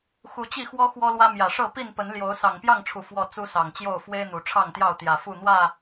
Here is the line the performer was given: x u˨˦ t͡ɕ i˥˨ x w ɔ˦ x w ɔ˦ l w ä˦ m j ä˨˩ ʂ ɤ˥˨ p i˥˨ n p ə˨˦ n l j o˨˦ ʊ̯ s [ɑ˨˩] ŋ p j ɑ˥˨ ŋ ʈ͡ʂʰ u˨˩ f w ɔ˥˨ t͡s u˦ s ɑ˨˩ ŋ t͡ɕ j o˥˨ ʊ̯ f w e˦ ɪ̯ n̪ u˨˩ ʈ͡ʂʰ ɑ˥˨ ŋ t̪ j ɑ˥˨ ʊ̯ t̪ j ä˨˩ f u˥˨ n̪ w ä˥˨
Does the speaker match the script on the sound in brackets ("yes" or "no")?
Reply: yes